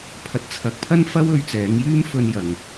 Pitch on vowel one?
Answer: rising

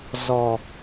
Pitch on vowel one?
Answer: low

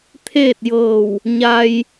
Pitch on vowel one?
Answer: falling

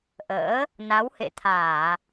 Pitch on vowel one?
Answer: rising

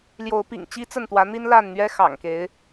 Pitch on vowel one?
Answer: rising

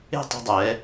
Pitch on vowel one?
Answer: falling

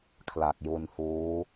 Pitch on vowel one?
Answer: low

